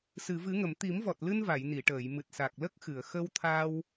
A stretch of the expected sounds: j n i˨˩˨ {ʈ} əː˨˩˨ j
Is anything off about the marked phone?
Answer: no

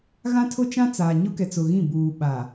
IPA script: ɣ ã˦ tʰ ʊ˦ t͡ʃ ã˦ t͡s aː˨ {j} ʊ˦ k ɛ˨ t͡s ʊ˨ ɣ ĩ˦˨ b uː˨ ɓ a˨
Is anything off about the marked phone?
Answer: yes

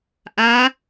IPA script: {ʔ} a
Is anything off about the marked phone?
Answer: no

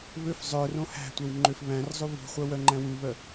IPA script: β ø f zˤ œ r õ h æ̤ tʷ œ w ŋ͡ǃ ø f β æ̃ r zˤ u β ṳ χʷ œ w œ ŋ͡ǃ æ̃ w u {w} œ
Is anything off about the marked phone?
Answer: yes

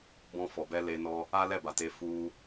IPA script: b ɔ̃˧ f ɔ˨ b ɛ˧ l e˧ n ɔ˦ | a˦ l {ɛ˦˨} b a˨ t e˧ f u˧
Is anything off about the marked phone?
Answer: no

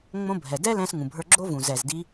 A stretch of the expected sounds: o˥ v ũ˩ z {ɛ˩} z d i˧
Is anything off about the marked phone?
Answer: no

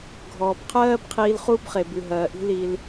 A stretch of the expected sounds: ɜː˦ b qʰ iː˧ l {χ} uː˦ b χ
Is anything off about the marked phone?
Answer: no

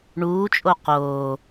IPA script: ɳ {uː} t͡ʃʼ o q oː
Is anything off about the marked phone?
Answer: no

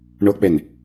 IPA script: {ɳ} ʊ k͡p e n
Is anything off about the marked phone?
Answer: no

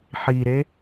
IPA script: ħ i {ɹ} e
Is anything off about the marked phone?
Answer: yes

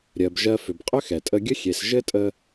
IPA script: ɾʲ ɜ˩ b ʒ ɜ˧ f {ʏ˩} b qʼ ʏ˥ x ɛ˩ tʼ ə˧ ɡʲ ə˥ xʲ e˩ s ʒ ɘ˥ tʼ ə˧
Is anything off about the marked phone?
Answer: no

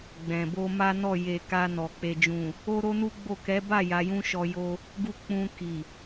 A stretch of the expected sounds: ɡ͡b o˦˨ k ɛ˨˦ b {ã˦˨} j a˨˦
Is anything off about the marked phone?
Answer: yes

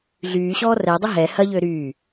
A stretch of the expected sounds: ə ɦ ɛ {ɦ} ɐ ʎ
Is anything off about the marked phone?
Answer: yes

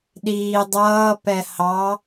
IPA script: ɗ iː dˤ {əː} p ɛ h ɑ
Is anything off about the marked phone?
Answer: yes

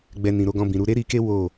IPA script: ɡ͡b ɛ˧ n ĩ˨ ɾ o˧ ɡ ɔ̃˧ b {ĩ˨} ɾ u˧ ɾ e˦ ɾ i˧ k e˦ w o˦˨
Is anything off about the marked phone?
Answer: no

